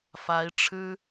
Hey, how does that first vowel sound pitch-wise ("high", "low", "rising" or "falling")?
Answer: rising